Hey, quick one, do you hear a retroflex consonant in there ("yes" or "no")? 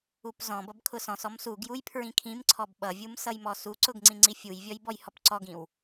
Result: no